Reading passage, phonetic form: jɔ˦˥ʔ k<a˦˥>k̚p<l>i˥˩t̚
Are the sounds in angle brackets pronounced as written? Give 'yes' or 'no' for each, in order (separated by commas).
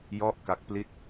yes, yes